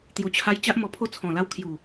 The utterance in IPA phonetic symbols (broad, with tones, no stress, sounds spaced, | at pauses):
t̪ j u˨˩ t͡ɕʰ a˧ j t͡ɕ a˦ ʔ m ɔ˧ pʰ o˦ t͡sʰ ɔ̃˨˩ l a˧ w kʰ j u˨˩